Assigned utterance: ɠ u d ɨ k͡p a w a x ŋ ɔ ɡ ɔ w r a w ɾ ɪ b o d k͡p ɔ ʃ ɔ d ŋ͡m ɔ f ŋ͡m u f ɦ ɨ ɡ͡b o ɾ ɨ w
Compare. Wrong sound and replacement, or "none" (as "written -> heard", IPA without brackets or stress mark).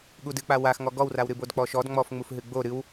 ɪ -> ɨ